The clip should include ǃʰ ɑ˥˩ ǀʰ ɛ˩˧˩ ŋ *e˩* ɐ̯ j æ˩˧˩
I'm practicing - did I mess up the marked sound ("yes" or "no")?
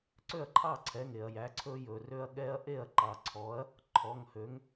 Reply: no